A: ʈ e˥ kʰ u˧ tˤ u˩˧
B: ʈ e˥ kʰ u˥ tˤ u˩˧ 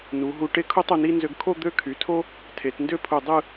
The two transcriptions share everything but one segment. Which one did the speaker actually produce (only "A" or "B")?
B